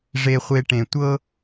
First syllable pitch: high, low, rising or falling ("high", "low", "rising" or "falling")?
low